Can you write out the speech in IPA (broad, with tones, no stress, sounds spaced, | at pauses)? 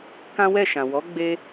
k ã˦ w ɛ˦˨ ʃ ã˨ w ɔ˨˦ ɡ͡b e˧